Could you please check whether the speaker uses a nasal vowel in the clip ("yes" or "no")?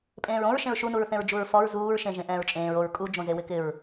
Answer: yes